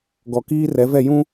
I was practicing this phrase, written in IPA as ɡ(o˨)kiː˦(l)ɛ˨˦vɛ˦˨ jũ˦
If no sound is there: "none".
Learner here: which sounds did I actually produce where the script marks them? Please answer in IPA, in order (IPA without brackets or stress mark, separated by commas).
ɔ˨, r